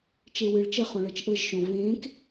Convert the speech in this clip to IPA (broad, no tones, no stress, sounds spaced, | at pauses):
t͡ʃ e w ɨ ɭ t͡ʃ ə χ õ ɭ ɤ t͡ʃ ʔ ɤ ʒ ʃ õ v ẽː k